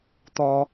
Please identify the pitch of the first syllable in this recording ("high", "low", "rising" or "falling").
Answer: high